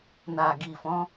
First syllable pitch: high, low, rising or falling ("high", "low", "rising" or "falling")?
low